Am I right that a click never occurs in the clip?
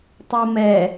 yes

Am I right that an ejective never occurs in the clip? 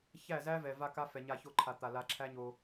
yes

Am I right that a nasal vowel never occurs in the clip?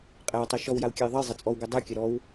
yes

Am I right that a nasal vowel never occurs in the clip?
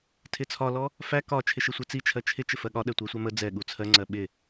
yes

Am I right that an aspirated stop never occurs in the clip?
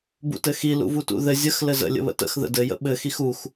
yes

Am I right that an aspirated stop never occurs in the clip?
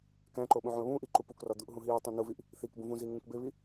yes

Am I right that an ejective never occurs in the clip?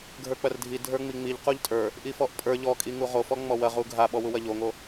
no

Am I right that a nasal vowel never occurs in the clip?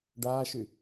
yes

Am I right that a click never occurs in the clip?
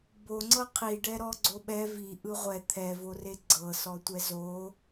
no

